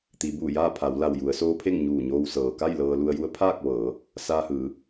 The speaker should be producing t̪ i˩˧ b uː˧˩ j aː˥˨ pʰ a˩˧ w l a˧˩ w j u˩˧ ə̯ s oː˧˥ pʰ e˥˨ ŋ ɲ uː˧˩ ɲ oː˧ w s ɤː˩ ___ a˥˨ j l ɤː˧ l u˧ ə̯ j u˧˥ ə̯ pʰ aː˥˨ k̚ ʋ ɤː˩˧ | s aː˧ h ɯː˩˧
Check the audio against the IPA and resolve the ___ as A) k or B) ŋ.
A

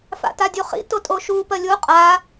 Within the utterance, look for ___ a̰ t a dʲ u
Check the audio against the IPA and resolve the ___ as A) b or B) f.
B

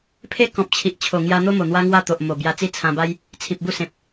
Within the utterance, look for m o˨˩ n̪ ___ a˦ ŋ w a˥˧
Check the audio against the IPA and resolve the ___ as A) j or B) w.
B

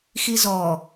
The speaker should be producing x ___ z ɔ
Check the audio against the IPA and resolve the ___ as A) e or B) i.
B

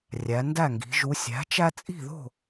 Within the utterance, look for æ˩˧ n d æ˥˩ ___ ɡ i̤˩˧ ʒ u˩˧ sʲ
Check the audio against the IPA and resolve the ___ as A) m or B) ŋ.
B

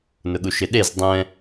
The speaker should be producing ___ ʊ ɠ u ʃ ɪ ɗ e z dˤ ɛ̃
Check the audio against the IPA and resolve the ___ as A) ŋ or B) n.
B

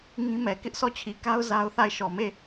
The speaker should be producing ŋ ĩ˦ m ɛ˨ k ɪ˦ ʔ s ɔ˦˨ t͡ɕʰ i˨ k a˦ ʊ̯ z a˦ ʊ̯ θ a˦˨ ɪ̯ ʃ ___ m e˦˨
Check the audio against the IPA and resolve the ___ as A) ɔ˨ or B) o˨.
A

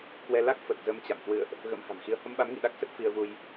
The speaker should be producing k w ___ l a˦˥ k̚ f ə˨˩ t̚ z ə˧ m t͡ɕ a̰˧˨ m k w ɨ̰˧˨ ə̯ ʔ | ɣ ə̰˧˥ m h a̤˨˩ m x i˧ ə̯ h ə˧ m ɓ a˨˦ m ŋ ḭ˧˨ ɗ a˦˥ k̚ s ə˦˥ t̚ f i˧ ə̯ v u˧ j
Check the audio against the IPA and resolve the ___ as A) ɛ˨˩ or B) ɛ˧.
B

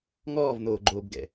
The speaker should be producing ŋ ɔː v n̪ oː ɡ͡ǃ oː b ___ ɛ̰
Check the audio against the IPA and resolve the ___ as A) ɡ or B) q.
A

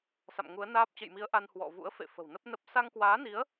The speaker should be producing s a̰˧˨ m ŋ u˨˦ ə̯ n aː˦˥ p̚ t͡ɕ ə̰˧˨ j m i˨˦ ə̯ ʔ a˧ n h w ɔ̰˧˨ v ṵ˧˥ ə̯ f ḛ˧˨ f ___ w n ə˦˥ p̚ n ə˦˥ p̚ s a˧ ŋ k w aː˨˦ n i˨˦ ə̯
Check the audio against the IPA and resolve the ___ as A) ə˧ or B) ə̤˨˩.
B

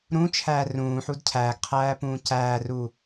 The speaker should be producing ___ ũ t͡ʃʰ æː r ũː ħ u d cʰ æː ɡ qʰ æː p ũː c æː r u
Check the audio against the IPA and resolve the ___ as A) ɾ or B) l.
A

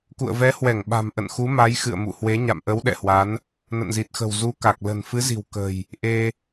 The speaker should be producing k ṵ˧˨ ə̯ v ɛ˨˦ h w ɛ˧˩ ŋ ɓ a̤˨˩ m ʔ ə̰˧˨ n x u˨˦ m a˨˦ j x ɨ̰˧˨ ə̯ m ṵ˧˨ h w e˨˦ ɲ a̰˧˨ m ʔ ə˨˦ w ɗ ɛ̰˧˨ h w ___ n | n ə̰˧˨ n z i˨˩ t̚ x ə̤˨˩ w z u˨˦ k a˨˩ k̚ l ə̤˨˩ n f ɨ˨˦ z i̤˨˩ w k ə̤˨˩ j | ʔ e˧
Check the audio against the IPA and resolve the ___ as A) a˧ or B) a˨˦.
B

